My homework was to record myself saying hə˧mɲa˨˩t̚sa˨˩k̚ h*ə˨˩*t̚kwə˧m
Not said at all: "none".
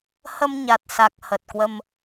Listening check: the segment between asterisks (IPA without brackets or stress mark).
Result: ə˨˩